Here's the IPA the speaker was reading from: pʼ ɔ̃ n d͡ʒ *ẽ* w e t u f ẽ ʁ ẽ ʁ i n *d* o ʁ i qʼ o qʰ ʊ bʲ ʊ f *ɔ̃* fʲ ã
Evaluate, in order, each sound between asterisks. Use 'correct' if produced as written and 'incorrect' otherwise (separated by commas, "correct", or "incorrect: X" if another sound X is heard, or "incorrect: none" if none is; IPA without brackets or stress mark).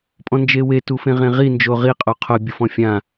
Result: incorrect: e, incorrect: d͡ʒ, correct